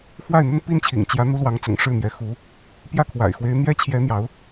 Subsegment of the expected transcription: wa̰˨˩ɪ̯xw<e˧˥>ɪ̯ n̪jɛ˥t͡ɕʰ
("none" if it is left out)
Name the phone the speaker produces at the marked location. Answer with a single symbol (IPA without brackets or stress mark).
e˧˥